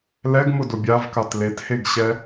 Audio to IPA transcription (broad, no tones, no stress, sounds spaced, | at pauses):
l ɛ ɡ m ʊ d ʊ bʲ a v k a t l e t h e ɡ ɕ ɛ